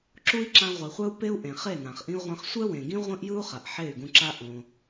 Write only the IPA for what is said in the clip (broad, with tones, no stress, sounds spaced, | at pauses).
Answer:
ǁ u˦ i̯ ǁ ã˧ ʁʷ e˨ χʷ ɛ˦ u̯ p e˦ u̯ ʔ ẽ˨ χ e˦˨ n ã˨ χ ʔ ĩ˦ u̯ ʁʷ ã˦ χ sʷ ɛ˦ w ẽ˨ ɡ ĩ˦ ʁʷ ĩ˦ ʔ j ɯ˦ u̯ χ a˨ ʔ ħ e˦˨ y̯ ɡ ũ˧ ǁ a˦ ʔ õ˧